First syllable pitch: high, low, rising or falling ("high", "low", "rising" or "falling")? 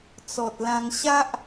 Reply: low